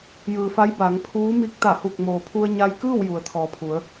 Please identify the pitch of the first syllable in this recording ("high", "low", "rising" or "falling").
low